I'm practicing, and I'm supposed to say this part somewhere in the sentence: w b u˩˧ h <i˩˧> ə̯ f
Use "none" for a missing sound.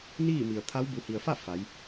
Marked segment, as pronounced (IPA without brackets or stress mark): i˩